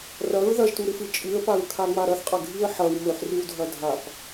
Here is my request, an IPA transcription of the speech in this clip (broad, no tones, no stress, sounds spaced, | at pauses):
r ɐ ɹ ð ɐ ʒ t u ɾ ɨ f ɨ t͡ʃʼ ɨ ə̯ p a ɹ kʰ a ŋ͡m a ɾ ɐ θ qʼ ɐ ɡʱ i ə̯ ħ ɐ w m ɵ ħ r ɨ w dʱ ɐ dʱ a p